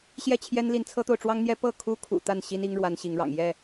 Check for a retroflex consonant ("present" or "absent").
present